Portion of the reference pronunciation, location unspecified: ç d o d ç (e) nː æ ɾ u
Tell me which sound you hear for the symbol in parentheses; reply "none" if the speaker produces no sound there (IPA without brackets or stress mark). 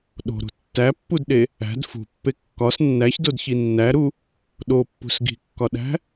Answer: i